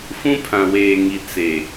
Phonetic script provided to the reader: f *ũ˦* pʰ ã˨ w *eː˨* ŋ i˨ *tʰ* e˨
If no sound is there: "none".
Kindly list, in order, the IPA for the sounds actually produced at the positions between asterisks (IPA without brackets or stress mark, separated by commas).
ũ˦, eː˨, t͡s